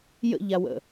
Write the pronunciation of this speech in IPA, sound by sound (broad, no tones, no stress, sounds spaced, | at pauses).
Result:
j ə̰ ʎ a w ə̰